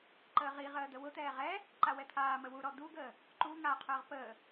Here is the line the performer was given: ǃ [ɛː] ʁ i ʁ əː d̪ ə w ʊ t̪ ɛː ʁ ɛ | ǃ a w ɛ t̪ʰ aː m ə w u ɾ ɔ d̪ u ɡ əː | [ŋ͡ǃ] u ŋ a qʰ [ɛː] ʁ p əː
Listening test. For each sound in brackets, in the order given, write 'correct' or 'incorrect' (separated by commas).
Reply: incorrect, incorrect, incorrect